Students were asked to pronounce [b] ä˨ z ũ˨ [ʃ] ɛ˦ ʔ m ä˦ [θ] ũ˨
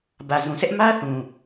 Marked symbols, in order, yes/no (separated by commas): yes, no, yes